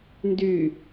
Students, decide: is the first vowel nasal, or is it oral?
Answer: oral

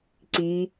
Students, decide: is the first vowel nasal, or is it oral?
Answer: oral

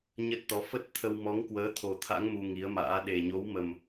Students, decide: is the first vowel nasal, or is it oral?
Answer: oral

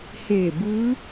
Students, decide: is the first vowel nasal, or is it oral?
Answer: oral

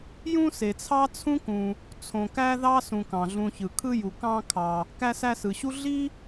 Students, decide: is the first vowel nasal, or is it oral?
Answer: nasal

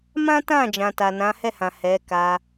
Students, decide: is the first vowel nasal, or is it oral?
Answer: nasal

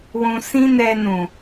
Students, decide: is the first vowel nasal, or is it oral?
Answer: nasal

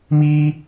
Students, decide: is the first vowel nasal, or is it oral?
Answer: oral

